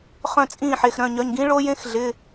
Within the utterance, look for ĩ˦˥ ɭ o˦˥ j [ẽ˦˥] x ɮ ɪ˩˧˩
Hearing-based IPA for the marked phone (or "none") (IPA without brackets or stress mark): ẽ˦˥